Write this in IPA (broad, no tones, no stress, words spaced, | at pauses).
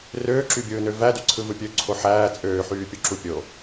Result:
røːǁybʲɯːnø vædyǀʰɯvɯ pʲøǀʰo ħæː t͡sʼøːħyːpʲuǁu pʲo